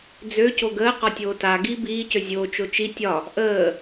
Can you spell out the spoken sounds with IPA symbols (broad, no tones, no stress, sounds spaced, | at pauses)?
d͡z ø c o ɡ əː q ɒ tʲ oː t a ɡ iː b iː c ø zʲ oː t͡ʃ o t͡ʃ i tʲ ɒ | ʔ əː